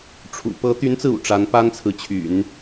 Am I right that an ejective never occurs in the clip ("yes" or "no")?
yes